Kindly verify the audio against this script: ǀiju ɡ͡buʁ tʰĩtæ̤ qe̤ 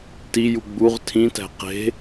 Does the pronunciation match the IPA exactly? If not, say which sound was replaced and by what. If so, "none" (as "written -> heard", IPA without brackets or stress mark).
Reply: ǀ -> t